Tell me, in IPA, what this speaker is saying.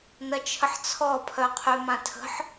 n ɐ t͡ʃʰ ə ħ t͡sʰ ɔ pʰ œ qʰ y m ã tʰ ə̤ ħ

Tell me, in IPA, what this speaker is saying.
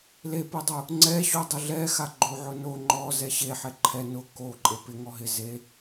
l e p ʊ dˤ u | ŋ͡ǀ ɛ ɕ o dˤ ʊ ɮ ɛ x a ɡ͡ǃ o ʕ ʊ n o ŋ͡ǃ ɔ z ɛ ɕ e ħ ɛ ǃʰ ɛ n ʊ k o ǃʼ e p ɪ ŋ ɔ ɦ ɪ z e

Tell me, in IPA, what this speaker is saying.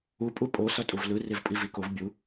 u pʼ u pʼ o s ʌ tʼ u v l ɯ r e v pʼ i v i k o v bʲ u

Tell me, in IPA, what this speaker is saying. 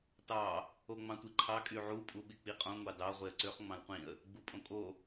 t ɑ | o ŋ͡m ɑ̃ tʷ i ǃʰ ɑ kʼ y ʕ u pʼ u ɓ i k͡p i qʼ õ ŋʷ ɑ d ɑ ʁʷ e ə̯ ǀ ø χ ŋ͡m ɑ̃ l qʷ ĩ ə̯ | ɡ͡b u pʼ õ kʼ o

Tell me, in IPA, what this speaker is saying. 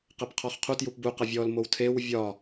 q ɛ p qʰ ɔ χ qʰ u t j u p b u q ɐ vʲ ɔ l m o w tʰ e w vʲ ɒ

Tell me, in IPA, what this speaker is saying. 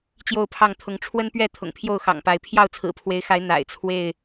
t͡ɕ j o˥˨ ʊ̯ pʰ ɑ˥˨ ŋ t̪ʰ ʊ˨˦ ŋ ʈ͡ʂʰ w ə˦ n p ɥ ɛ˥˨ t̪ʰ ʊ̰˨˩ ŋ pʰ j o˥˨ ʊ̯ x ɑ̰˨˩ ŋ p a˨˦ ɪ̯ pʰ j ɑ˥˨ ʊ̯ t͡sʰ ɹ̩˨˩ pʰ w e˨˦ ɪ̯ x a˨˦ ɪ̯ n̪ a̰˨˩ ɪ̯ t͡sʰ w e˥˨ ɪ̯

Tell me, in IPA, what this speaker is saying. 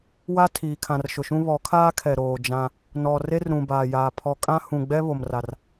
w a˦ tʰ iː˨ kʰ ã˨ r ʃ ʊ˨ ʃ ũ˦ β ɔ˨˦ kʰ aː˦ kʰ ɛ˨ ɾ oː˨ d͡ʒ ã˦ | n ɔ˨ r e˦ r ɾ ũ˨ b aː˨ j aː˨ pʰ ɔ˨ kʼ ã˦ h ũ˨ ɡ͡b ɛ˦ β o˨ m r a˨ r

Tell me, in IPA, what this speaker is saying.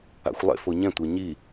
a̰ xʷ lˠ ḛ f o ɲ ɛ̃ tʷ ʌ ɲ i

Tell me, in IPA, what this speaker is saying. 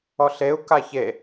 ɔ ɬ e u̯ k a ç e

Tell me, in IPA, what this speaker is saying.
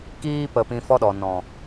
k iː˧ p ə˨ p ĩ˧ f ɔ˦ ɗ ɔ˨ n ɔ̃˨

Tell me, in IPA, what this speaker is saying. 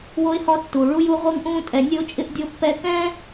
w o˥ ɪ̯ h ɔ˥ tː uː˩ ɭ u˥ j u˥ ʁʷ ɯ˦ ŋ ʔ ũː˦ tʼ ɛ˨ nʲ ə˦ ʊ̯ t͡ʃʼ ɪ˦ ʔ dʲ o˦ pː ɛ˦ k ɛ̃ː˥

